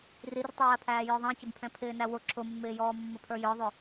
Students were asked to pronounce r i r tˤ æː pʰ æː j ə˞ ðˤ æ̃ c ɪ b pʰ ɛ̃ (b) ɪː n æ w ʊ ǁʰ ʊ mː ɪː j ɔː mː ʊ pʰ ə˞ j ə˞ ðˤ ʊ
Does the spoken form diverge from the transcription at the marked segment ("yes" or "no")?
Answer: yes